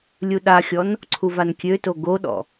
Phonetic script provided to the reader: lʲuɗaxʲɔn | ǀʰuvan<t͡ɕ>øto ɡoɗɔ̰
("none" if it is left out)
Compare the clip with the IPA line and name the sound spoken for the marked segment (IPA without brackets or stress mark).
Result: kʲ